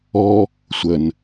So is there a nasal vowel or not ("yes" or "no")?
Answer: no